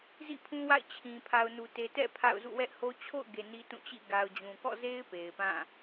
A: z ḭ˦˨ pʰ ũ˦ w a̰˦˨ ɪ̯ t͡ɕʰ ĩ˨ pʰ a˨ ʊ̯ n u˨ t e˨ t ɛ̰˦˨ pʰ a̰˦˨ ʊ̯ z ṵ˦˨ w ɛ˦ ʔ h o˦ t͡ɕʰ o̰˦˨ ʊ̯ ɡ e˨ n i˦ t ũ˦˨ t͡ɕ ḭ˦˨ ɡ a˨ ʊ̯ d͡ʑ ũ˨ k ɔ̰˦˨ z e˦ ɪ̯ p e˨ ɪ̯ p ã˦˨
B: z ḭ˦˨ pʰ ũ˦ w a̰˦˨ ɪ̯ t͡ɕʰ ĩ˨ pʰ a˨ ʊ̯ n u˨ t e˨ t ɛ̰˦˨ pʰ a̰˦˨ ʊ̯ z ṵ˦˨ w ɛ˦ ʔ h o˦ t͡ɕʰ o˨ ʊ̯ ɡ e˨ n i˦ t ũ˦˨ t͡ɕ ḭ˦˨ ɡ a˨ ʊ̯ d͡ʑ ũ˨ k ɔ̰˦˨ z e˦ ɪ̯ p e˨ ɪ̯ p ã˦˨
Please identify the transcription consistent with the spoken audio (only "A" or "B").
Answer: A